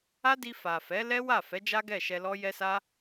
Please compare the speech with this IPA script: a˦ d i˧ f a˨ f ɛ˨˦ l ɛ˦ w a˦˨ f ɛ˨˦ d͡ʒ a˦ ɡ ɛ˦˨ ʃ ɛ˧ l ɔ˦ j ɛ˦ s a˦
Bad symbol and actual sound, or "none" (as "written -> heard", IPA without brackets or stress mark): none